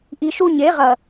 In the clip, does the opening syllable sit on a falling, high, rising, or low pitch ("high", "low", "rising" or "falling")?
low